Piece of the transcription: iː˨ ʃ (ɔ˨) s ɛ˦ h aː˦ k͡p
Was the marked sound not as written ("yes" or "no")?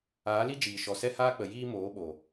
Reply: no